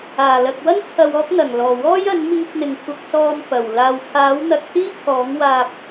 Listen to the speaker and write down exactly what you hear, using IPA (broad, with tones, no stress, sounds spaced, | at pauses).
aː˨˩ l ɐ˨ k̚ w ɐ˥ n t͡sʰ ɐ˧ w ɔː˥ k̚ n̪ ɐ˨˩ ŋ l ɔː˨˩ w ɔː˥ j ɐ˨˥ n m iː˧ k̚ n̪ ɪ˨ ŋ kʷʰ ɐ˧ k̚ s ɔː˧ m f ɐ˨˩ w l aː˨ w kʰ aː˨˥ w n̪ ɐ˧ k̚ s iː˥ kʰ ɔː˨˥ ŋ w aː˧ p̚